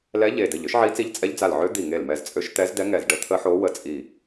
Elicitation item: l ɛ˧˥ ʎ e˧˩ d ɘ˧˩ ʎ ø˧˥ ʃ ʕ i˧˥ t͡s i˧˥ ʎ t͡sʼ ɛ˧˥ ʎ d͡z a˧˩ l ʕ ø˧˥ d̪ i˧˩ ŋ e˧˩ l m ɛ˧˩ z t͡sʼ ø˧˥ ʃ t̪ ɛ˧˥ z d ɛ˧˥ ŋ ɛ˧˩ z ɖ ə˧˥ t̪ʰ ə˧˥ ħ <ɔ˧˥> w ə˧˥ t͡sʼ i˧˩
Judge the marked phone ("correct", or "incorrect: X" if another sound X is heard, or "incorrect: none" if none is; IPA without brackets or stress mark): incorrect: o˧˥